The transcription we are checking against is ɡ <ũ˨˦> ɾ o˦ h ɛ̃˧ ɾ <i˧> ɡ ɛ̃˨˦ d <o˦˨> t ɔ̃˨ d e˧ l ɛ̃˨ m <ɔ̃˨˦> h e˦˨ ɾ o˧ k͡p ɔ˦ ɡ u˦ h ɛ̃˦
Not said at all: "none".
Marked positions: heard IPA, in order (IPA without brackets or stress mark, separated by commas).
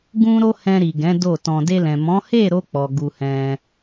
ũ˦, i˨, o˦˨, ɔ̃˨˦